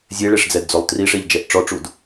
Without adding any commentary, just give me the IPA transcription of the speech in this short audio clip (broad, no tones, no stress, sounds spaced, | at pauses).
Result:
zʲ e ɭ e ʂ d͡z ɛ d d͡z o lˠ t r i ʂ e ʎ d͡ʒ ɛ ʔ ʈ͡ʂ ɔ ʈ͡ʂ u d